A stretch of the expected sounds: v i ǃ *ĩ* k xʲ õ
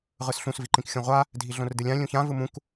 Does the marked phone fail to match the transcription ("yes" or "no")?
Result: no